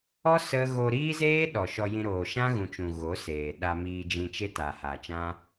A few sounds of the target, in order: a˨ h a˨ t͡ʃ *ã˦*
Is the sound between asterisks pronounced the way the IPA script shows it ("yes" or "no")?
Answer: yes